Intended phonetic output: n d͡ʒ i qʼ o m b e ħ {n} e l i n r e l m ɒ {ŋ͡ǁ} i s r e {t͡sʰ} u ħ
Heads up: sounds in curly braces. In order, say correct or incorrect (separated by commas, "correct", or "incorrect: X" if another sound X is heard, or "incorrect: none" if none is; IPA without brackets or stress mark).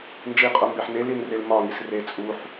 correct, incorrect: ŋ, incorrect: t͡sʼ